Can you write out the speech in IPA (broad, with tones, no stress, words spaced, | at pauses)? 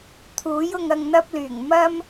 t̪ʰuː˨˥jʊ˧ŋ ɐ˧ŋn̪ɐ˥p̚ lyː˨˩ŋmɐ˥m